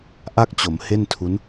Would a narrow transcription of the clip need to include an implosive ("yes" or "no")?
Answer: no